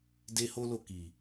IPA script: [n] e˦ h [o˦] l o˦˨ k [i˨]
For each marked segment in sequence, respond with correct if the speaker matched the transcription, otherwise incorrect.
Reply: incorrect: d, correct, correct

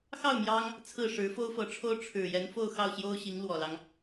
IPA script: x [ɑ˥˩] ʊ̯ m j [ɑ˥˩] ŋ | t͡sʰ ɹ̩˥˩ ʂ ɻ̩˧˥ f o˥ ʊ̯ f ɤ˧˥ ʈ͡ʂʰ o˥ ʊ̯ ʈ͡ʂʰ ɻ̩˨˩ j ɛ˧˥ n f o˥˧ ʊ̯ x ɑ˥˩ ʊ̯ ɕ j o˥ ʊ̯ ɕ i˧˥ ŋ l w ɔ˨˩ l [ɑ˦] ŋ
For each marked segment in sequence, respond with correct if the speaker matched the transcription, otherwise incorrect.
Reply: correct, incorrect: ɑ˥, correct

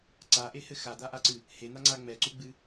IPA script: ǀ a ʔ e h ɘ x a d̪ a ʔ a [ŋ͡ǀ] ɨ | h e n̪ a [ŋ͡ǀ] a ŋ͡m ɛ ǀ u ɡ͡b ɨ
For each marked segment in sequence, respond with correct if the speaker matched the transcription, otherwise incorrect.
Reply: incorrect: ǀ, correct

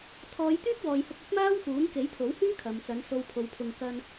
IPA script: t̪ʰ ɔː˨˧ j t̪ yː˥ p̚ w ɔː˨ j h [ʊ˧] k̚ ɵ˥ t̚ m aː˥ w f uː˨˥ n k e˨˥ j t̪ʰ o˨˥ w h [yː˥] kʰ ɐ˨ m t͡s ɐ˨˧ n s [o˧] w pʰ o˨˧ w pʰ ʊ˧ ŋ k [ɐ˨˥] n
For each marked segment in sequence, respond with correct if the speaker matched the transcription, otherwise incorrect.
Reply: correct, correct, correct, incorrect: ɐ˥

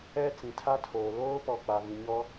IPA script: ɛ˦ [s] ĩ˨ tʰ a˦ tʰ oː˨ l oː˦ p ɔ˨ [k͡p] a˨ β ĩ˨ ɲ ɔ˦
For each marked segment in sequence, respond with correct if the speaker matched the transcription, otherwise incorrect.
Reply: incorrect: t͡s, correct

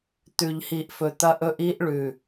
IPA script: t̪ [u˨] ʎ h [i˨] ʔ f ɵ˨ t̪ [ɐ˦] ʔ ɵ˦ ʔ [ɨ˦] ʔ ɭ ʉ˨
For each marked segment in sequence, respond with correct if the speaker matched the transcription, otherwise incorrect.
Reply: incorrect: ʉ˨, correct, correct, incorrect: i˦

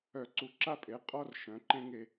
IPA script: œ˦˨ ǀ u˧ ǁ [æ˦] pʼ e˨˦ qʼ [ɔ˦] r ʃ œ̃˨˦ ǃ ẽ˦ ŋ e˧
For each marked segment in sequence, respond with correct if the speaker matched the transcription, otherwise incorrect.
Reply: incorrect: a˦, correct

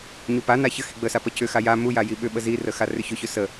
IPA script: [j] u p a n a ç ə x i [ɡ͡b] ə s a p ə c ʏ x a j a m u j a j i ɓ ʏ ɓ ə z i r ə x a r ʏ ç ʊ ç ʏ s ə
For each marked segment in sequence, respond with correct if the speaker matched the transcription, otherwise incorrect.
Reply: incorrect: ɲ, correct

